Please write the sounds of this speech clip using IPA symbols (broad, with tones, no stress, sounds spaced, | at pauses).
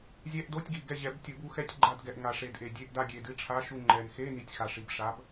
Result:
zʲ ɛ˧˥˧ ʔ d o˧˥˧ tʲ ɡ i˨˩ ɡ ɛ˦˨ ʑ ɛ˨˩˦ b tʲ u˨˩˦ b u˨˥ x ɛ˧˥˧ tʲ ɡ͡ǃ a˦˨ d ɡ ɛ˨˩ ʔ ŋ a˨˩ ʂ e˨˩ d ʔ e˨˩ dʲ e˧˥˧ ʔ d a˦˨ ɡʲ e˨˩ d ɨ˨˥ ʈ͡ʂʰ a˧˥˧ ʃ u˦˨ ŋ͡ǃ ɛ˨˩ n x e˧˥˧ n i˨˩ tʲ x a˨˩ ʂ i˨˩ b ʂ a˨˥ b